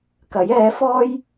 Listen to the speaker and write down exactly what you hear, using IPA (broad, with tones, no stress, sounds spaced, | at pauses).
k ɐ˨˥ j ɛː˨˥ f ɔː˥ j